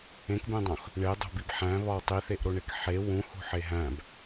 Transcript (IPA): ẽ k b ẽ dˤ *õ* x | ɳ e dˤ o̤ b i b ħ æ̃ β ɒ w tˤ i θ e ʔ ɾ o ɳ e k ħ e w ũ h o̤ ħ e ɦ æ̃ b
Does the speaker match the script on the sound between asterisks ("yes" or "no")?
yes